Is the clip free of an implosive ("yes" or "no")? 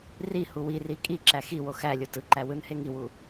yes